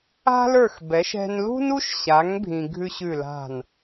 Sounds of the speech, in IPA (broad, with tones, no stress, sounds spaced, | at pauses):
a̤˥ l ə˞˥˩ x b ɛ˩˥ ʃ ɛ̤˧ n l ṳ˥ n u˥ ʃ ɕ a˩˥ ŋ bʱ ĩ˧ ɡʱ ʉ˥ ɕ ʉ˥˩ l a̤˥˩ n